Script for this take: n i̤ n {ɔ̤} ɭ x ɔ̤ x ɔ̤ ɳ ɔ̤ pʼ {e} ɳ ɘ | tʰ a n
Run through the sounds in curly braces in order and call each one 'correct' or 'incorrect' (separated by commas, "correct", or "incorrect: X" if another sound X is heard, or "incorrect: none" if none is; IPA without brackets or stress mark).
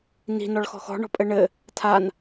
incorrect: ɔ, incorrect: ɘ